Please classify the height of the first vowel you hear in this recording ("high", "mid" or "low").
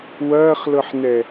low